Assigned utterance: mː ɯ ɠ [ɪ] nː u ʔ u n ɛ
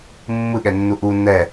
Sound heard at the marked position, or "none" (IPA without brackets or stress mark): ɛ